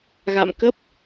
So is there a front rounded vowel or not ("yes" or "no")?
no